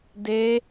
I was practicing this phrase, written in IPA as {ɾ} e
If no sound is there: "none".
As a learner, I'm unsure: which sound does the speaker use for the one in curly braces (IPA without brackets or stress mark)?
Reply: d